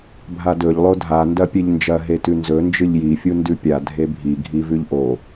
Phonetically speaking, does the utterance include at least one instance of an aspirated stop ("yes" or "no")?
no